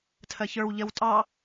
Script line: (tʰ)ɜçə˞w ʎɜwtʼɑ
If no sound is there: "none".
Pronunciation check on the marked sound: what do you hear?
tʰ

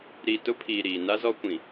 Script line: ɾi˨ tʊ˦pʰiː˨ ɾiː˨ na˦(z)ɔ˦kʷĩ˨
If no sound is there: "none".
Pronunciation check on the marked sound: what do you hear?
z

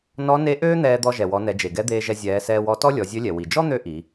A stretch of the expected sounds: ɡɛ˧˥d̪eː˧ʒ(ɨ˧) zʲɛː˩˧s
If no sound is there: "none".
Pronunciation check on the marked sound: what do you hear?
ɛ˧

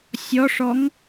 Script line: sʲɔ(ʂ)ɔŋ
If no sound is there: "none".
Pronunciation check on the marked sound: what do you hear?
ʂ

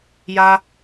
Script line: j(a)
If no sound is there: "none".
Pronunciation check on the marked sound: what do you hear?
a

